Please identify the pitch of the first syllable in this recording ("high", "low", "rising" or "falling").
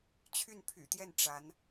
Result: falling